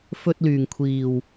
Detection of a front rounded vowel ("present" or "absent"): present